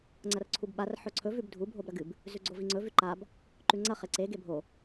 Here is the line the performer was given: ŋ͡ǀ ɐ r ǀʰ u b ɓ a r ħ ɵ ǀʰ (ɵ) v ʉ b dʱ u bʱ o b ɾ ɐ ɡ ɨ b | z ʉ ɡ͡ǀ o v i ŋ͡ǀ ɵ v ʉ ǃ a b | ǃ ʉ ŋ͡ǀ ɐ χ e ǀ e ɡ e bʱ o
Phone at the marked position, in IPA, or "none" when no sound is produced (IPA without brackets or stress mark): ɵ